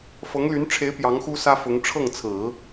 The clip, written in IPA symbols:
f ɤ˧˥ ŋ l y˧˥ n ʈ͡ʂʰ e˧˥ ɪ̯ p j ɑ˧˥ ŋ x u˥ s ä˥ f ʊ˧˥ ŋ ʈ͡ʂʰ ɤ˥˩ ŋ t͡sʰ ɹ̩˨˩˦

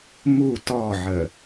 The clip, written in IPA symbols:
m u t ɔ ʕ ə

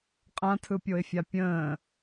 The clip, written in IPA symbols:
qʼ ã tʰ ɯ pʲ o ɪ̯ fʲ a pʲ ə̃ː

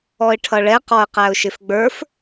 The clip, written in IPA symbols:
ɔ ɪ̯ ʈʰ ʌ ɭ ɛ q ɔ ə̯ q æ ʊ̯ ʃ ɪ f ɡ͡b ə˞ f

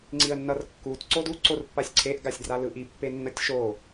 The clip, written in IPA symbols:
ŋ͡ǀ i ə̯ nː ʌ r kː u t ǀ o d u ǀ o r pː a sʲ ǀʰ e ʔ ɡ a sʲ d r a l ɯ ʔ i pː e nː ʌ tʲ ʃ o

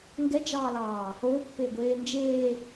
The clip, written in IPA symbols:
ŋ ɡ ɛ d͡ʒ ɑː l ɑː | o pː e ɡʷ eː n d͡ʒ eː

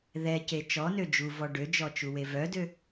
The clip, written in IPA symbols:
ð ɛ c e t͡ʃ ɔ n ø d͡ʒ u v ɔ ɖ ø d͡ʒ ɔ t͡ʃ u w e v œ d ø

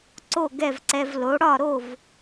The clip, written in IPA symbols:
ǀ o˥˩ ɡ ɛ˥˩ v ǀ ɛ˧ v l o˩˥ ɽ ɒ˥˩ ɾ o˥˩ v

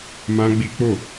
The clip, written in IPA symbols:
m ã˦ ɡ͡b i˦ k͡p o˦˨

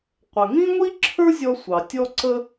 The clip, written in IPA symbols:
qʷ ə˩ ŋ ĩ˥ ŋʷ i˥ ǁʰ ə˞˥ zʲ ɔ˧ sʷ ɑ˩ tʲ ɔ˧ ǀ ə˧

